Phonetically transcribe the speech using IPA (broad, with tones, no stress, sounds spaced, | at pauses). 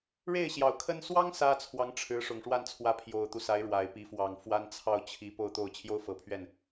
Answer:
ɻ e˥˩ ɪ̯ ɕ j ɑ˨˩ ʊ̯ kʰ ə˥ n s w ɑ˥ ŋ s ä˥ t͡sʰ w ɑ˧˥ ŋ ʈ͡ʂʰ ɻ̩˧˥ ʂ ʊ˨˩ ŋ ʂ w a˥˩ n t͡sʰ w ä˧˥ pʰ j o˨˩ ʊ̯ t̪ u˦ s a˧˥ ɪ̯ ɻ w a˨˩ ɪ̯ p i˧˥ f w ɑ˨˩ ŋ f w a˥ n t͡sʰ ɑ˥˩ ʊ̯ t͡ɕʰ i˧˥ p o˥˧ ʊ̯ t̪ o˥˩ ʊ̯ t͡ɕʰ j o˥ ʊ̯ f ɤ˨˩ pʰ ɥ ɛ˥˩ n